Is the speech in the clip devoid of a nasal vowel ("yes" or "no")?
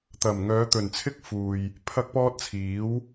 yes